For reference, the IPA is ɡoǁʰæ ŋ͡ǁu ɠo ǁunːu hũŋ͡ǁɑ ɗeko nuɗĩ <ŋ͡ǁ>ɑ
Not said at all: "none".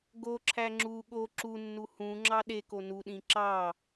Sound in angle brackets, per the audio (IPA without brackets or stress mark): ǁ